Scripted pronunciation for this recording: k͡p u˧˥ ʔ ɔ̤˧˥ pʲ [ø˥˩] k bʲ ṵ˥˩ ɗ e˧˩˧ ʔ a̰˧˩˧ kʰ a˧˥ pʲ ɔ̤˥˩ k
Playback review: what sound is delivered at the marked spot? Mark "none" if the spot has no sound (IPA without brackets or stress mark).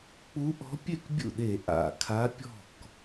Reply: ø˥˩